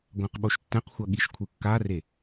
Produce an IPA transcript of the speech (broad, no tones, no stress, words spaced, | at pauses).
ɡʷãqɓoʃtːɛ̃qxʷʌ ɠiʃkʷʰɯkːare